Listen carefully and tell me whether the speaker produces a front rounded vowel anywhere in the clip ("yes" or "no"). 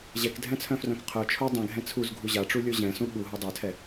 yes